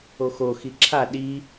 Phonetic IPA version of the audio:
o x o x i ǁʰ a ɗ i

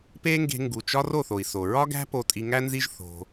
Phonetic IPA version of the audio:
p e˦ ŋ ɡ e̤˧ ŋ ɡ u˨ t͡ʃ ɒ˦ r o˦˨ θ o˨ i̯ s o˨ ɹ ɒ˦ ɡ æ̤˦ p o˧ tʼ i˧ ŋ æ˦ n z i˦ ʒ θ o̤˧

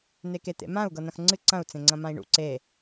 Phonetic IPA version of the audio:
n e k e t̪ ḛ m ã u̯ ɡ ɤ n ɐ̃ x ŋ͡ǀ ɨ ǀ ɐ̃ u̯ t͡s ẽ ŋ͡ǀ ɐ̃ m ã i̯ ɳ ṵ ǀ e

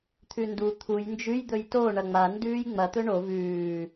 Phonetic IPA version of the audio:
t̪ʰ ʉ n d u t̪ʰ u j n d͡ʒ ʉ j d̪ ɵ j t o ɳ ɐ ŋ͡m a n d ʉː j ŋ͡m ɐ t̪ ɵ ɳ o v ʉː

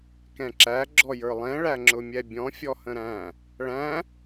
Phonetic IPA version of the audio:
k ɛ̃ ǁ æ ɡ͡ǁ ɔ j ə˞ lˠ ɛ̃ ɭ æ ŋ͡ǁ ʊ mʲ ɛ bʲ ɔ̃ fʲ ɔ h ə̃ ɾ æ̃ | ɭ æ̃

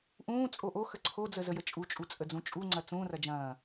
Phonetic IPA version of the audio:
ʔ ũː t͡sʼ o ʔ o x ə ǀʰ o d͡z ə z ə j ə t͡ʃʼ u t͡ʃʼ u t͡sʼ ə d͡z ũ t͡ʃʼ u ŋ͡ǀ ɐ t͡s ũː r ɐ d͡ʒ ɐ̃ː

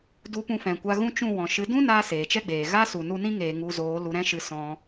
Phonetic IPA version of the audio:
d u˧ p ũ˧ f ɛ̃˨ kʷ a˧ ɣ ũ˦ t͡ʃ ũ˦˨ w ɔ̃˨ ʃ ɨ˨˦ d ũ˦ n aː˧ s eː˨ t͡ʃ ɛ˦ ɡ͡b eː˨ ɣ a˦ s u˨ n u˧ n ĩ˦ ŋ eː˨ ŋ u˧ z oː˨˦ l u˧ ɾ ɛ̃˦ ʃ ɨ˧ s ɔ̃˧

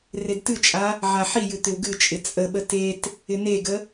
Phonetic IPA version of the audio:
r e d t ɨ t͡ʃʼ a | ʕ a ħ i j ɨ t̪ ɪ w ɡ ɨ t͡ʃʼ ɪ t͡sʼ ə ɓ ə t e t | ɪ n e ɡ ə

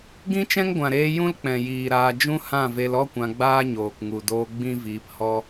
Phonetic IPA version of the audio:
ɡ ĩ˦ t͡ʃ ɛ̃˦ ŋ ɡʷ ã˨ ɾ eː˧ j ũ˦ l k͡p ɛ̃˨ j iː˨ ɾ aː˧ d͡ʒ ũ˦ h ã˦˨ v e˧ l ɔ˦ kʷ ã˧ ɡ͡b aː˦ ɲ oː˨ k ŋ u˨ d oː˧ ɡ͡b ĩ˦ v iː˧ p h ɔ˦

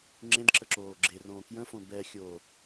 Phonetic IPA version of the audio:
ŋ͡ǁ ẽ d ǁ ə ǁ oː ɡ͡ǁ e r õː k j ə̃ f õ b ɛ xʲ o

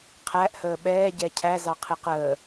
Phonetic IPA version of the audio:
qʰ æ ʔ h əː ɓ ɛː ɟ ɛ cʰ æ z ɑ qʰ ɪ q əː

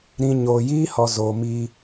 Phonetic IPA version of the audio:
ɾ ĩ˧ ɲ oː˨ j iː˦ h ɔ˨ z oː˨ m iː˧

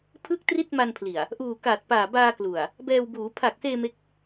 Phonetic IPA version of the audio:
pʰ ɯ˥˩ k̚ t r i˥˩ t̚ m a˧ n pʰ l i˨˩ a̯ | ʔ uː˨˩ k aː˨˩ t̚ p aː˨˩ b aː˧ k l u˨˩ a̯ | b ɛː˧ w b uː˩˦ pʰ a˨˩ k̚ s eː˧ m e˦˥ k̚

